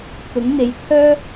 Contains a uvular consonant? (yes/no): no